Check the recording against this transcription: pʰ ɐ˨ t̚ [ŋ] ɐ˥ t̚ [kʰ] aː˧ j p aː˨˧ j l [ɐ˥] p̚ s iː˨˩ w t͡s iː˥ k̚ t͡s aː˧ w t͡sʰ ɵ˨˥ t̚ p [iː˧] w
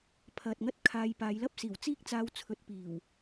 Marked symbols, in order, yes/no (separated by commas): yes, yes, yes, no